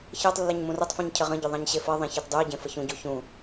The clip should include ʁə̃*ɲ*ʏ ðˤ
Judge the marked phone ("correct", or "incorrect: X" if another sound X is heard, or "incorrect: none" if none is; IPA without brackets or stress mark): incorrect: ɟ